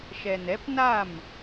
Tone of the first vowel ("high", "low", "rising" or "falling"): low